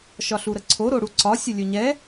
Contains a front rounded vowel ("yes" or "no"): no